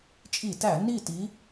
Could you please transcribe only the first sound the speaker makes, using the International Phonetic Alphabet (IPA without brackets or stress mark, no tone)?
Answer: t͡ʃʼ